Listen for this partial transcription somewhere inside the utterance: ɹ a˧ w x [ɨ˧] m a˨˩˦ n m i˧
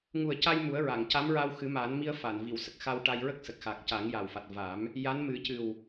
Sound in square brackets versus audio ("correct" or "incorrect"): incorrect